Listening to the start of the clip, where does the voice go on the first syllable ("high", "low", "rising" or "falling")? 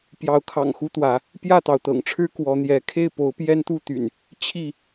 rising